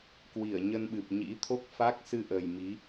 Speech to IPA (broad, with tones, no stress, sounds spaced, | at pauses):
k w i˧˩ ə̯ ɲ ə˧ n ɓ ɨ˨˩ p̚ ɲ ḭ˧˥ t̪ʰ o˦˥ k̚ f a˦˥ k̚ s ɨ˧ ʔ ə˨˩ j m i˨˦